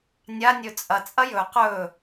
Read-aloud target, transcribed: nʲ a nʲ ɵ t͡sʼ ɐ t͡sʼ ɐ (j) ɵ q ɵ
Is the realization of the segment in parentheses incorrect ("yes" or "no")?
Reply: no